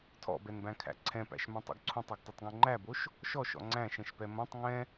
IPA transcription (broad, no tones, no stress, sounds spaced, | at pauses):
tʰ ɔ̰ b ɛ n b æ̃ kʰ æ̰ ǀʰ ɛ̃ p æ̰ ʃ m ɑ̃ tˤ ṵ ɡ ǀʰ õ tˤ ɑ ɡ tˤ ɛ tˤ ɡ õ ŋ͡ǃ æ b o ʃ | ʃ ɔ ʃ ɔ̰ ŋ͡ǀ æ̃ ʃ ɛ̃ ʃ p ɛ m õ tˤ ŋ ɛ̃